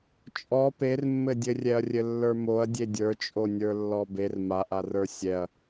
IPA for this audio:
t͡ʃʼ ɔ p e r mː ɘ dʲ ɘ rʲ ɛ ɐ̯ rʲ ɘ lː ə˞ m o ɐ̯ dʲ e dʲ ə˞ t͡ʃʼ o nʲ ə˞ lː ɔ b e r m a ʔ a r ə˞ sʲ ɛ ɐ̯

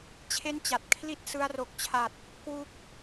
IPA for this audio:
t͡ɕʰ e˥˩ n t͡ɕ a˨˩ t̚ kʰ l i˦˥ t̚ s ɯ˧ a̯ r o˨˩ k̚ t͡ɕʰ a˨˩ t̚ | k w u˦˥ k̚

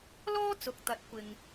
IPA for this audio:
l ɔː˥ t͡s ʊ˨ k̚ t̪ ɐ˨˥ t̚ kʷ ɪ˨ ŋ

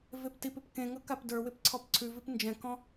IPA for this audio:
v e p t i p ɪ p k ẽ ŋ ɤ k a p d ə˞ w ɪ p ǀʰ ɔ p ǀʰ ʉ v i p n d͡ʒ ɛ̃ k ɔ̃

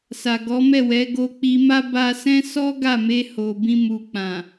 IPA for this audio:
s a˨ ɡ ɔ˨˦ m ɛ˦˨ w ɛ˨˦ ɡ o˧ k͡p i˧ m a˦ b a˧ s ɛ̃˦ s ɔ˦ ɡ a˦˨ m e˧ h o˨ b ĩ˧ m u˨ k͡p ã˨

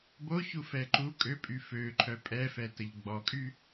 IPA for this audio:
b o ç u f ɛ ǃ u kʼ ø pʼ y f ø ǃʰ œ pʼ ɛ f ɛ t ə ʎ ɡ͡b ɔ kʼ y

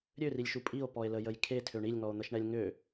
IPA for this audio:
ɾʲ ø r i lʲ ʃ u pʼ i o̯ p ɔ e̯ l ə j ə j kʰ e tʰ ø ɳ i lʲ ŋ ɔ o̯ n̪ ə ʃ ɳ ɛ lʲ ŋ ø

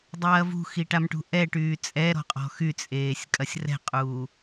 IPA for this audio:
dˤ ɐː v ṳ x i ʈ a m ʈ ṳ ʔ ɛ ʈ yː t͡sʼ ɛ ɾ ɔ̤ qʼ ɔ̤ x y t͡sʼ eː sʲ kʼ ɐ sʲ r ɛ̤ qʼ uː

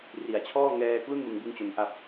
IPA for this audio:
r i˩˦ a̯ t͡ɕʰ ɔː˥˩ ŋ ɛː˧ k l u˥˩ n m ɯ˧ ŋ b ɯ˥˩ ŋ t͡ɕ o˦˥ n ʔ a˥˩ p̚

